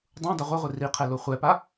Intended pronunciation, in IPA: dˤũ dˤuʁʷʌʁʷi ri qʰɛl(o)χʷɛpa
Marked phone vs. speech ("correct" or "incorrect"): correct